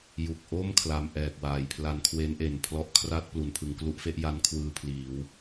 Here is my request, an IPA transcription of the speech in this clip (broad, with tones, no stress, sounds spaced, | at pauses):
j u˨˩ k̚ ʔ o˥˩ m kʰ l a˧ m ʔ ɛː˨˩ k̚ w aː˩˦ j pʰ l a˧ n kʰ w e˦˥ n ʔ e˨˩ n pʰ l ɔ˦˥ ʔ kʰ r a˥˩ t̚ p l u˩˦ n pʰ ɯ˩˦ ŋ k l u˦˥ ʔ f e˦˥ ʔ j a˦˥ n kʰ w ɯː˧ pʰ l iː˩˦ w